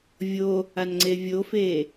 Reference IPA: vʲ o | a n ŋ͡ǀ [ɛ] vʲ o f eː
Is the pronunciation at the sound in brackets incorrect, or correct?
incorrect